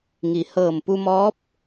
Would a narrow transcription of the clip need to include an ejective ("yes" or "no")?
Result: no